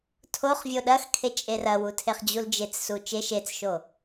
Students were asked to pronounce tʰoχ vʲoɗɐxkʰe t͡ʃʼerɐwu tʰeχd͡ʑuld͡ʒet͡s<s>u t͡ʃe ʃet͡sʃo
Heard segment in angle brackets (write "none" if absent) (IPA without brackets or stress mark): s